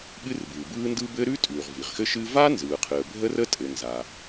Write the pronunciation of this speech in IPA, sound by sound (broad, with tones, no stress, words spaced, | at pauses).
ɠɨ˥rbɯ˩bɯː˥ndɯ˥ bɘ˥ ɾʉ˥tʼʉ˩ʁ vi˩ʁxɘ˥ʃɨ˥ va˥nzɯː˩qʰɨ˩ə̯ bʱə˥rə˥tʼɘ˩ nza˩